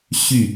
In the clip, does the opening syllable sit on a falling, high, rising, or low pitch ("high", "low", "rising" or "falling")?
falling